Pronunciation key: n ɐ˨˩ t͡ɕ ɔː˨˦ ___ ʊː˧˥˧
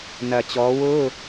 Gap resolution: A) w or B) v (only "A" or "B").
A